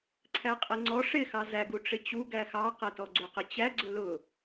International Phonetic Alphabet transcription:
ǀʰ æ qʼ i ŋ͡ǀ ɔ ʂ ɪ x ɑ z æ ɡ u ʈ͡ʂ ɪ t͡ɕ u ɡ æ x ɑ q ɛ t ɔ ɡ͡ǀ u q ə t͡ɕ æ ɡ͡ǀ ʊ l ʊ

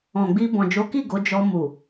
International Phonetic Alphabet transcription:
ɔ̃˨ ɡ͡b i˧ b ɔ̃˨ d͡ʒ o˨˦ k i˦˨ ɡ o˨˦ d͡ʒ ɔ˧ m u˨

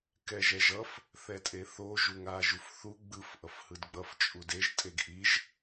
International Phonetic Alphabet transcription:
k ɛ ʒ ɛ ʒ ʌ f | θ ɛ tʼ e θ o ʒ u ŋ a ʒ u f θ u ɡ͡b ɯ f ʔ ʌ f h ɯ d ɡ͡b ʌ f t͡ʃʼ u d e ʒ tʼ e ɡ ʔ i ʒ

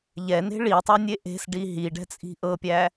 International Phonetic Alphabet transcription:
ʎ ɛ n e̤ ɭ i tˤ æ nʲ e ʔ e̤ s ɖ i ɦ i ɖ ɛ̤ t͡sʼ i̤ ʔ ɤ pʲ æ

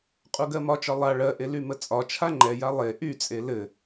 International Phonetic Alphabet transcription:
qʼ u ɡ ɜ m ɒ t͡ʃ ɒ lˠ a ɭ ɜ ʔ e l y m ə t͡sʼ ɒ t͡ʃʰ a ŋ͡ǃ ɛ j a lˠ e ʔ y t͡sʼ e l ɘ

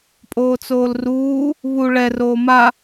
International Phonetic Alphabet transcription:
pʼ oː t͡s oː l r uː | β u ɭ ɛ r oː m a

